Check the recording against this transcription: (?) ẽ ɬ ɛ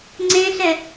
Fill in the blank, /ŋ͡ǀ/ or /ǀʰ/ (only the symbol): ŋ͡ǀ